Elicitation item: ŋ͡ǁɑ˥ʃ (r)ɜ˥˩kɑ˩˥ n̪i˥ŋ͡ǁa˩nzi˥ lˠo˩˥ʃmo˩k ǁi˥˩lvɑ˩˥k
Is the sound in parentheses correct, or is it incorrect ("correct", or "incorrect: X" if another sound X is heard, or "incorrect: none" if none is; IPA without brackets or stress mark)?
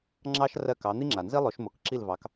correct